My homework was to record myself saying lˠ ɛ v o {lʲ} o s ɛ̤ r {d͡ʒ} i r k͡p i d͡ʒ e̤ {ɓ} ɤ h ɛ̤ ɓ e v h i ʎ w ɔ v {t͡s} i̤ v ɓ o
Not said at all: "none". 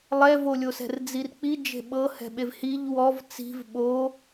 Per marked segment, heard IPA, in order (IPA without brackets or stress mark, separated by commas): lʲ, d͡z, ɓ, t͡s